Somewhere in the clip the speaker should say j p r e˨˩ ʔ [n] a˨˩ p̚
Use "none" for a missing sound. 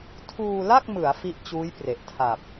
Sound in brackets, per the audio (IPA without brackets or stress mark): tʰ